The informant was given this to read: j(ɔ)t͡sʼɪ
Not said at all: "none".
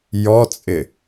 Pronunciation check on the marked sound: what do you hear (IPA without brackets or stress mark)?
ɔ